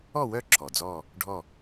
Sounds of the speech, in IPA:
ɔ˥˨ w œ˥˨ ǁʰ ɔ˩ d͡z ɔ˥˨ | ɖʱ ɔ˥˨

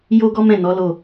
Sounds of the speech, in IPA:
j o˦ ɡ ɔ˦ m ɛ̃˦˨ n ɔ˨˦ l o˦˨

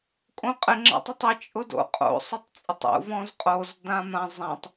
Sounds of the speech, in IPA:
kʼ õ qʼ ɪ ŋ͡ǁ a̰ tˤ ʊ tˤ ɪ t͡ʃʼ ʊ d o̰ qʼ o̰ sˤ ʊ tˤ t͡sʼ ɪ tˤ ṵ v ɔ̃ z qʼ o z d ã m ã zˤ ã tˤ

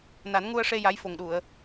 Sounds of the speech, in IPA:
n a˨˩˦ n ŋ u˧ ə̯ ʂ e˧ j a˧˥ j f o˨˩ ŋ ɗ u˨˩˨ ə̯

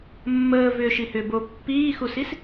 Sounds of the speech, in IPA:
mː əː v ʏː ʃ i h ʏː b o pː iː x u s i s

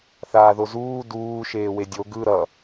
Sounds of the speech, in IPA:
θ aː ð o z uː d uː ʃ eː w e dʲ o ɡ ɯ ɾ ʌ

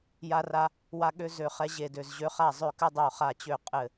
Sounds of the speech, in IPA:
j a˦ r a˦ | w a˦ ɠ ø˦ z ø˦˨ χ ɛ˦ ʑ e˦˨ d ø˦˨ z ʑ ø˦ χ a˦˨ zˤ ø˦˨ k ɘ˦ dˤ o˦˨ χ a˦˨ t͡ɕ ø˦˨ qʼ ɘ˦˨

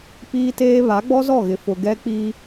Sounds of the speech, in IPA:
p iː˦ t eː˦ β a˨˦ ɡ͡b ɔ˦ z ɔ˦˨ ɣ ɪ˨ f ʊ˨ ɡ ɛ˦ k͡p i˦

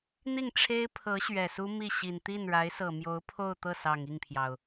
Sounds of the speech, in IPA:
n̪ i˥˩ ŋ ʈ͡ʂʰ e˥ ɪ̯ pʰ ɤ˧˥ ɕ ɥ ɛ˨˩ s u˥ m i˥˩ ɕ i˨˩ n t̪ i˥˩ n ɻ a˧˥ ɪ̯ s ɤ˨˩ m j o˧˥ ʊ̯ pʰ o˥˧ ʊ̯ t̪ ɤ˥˩ s ɑ˨˩ ŋ i˥˩ ŋ pʰ j ɑ˩ ʊ̯

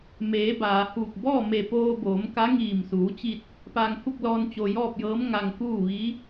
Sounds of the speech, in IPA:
m eː˩˧ b aː˩ h uː˧˩ k̚ b ɔː˥˨ m e˧˩ p oː˧ b oː˩˧ m k a˧˥ ŋ iː˧˩ m s uː˩˧ t͡ɕ i˧ t̚ | p aː˧ ŋ h u˥˨ k̚ l ɔː˧ n t͡ɕ o˧ j ɔː˥˨ p̚ j ɤː˧˥ m ŋ a˧ ŋ k uː˥˨ ʋ i˧˥

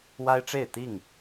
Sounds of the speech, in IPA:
w a˦ ɪ̯ ʈ͡ʂ e˥˨ ɪ̯ t̪ i˥˨ ŋ

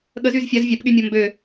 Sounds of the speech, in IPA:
ɠ ə z y z fʲ a z vʲ a p ɠ y mʲ ɔ m b ø

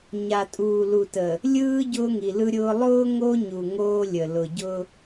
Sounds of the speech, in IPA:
ɲ a˨ tʼ uː˨ l u˨ t ə˨ | lʲ ɯː˦ ɟ ʊː˦ ŋ i˨ l ɯ˦ ɾʲ ʊː˦ lˠ ʊː˦ ŋ o˦ ɲ u˨ ŋ oː˦ lʲ ə˨ l ʊ˨ ɟ ʊ˦

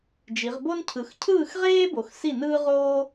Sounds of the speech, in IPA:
d͡ʒ i˩˧ ʁ b o˥ n cʰ ɯ˩˧ x cʰ ɯː˥˨ x ʁ eː˥ b o˩˧ x s i˥˨ n ɯː˥ ʁ oː˥

